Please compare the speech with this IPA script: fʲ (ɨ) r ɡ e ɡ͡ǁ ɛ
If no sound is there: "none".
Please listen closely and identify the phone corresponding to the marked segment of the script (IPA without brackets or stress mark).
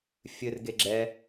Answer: ɨ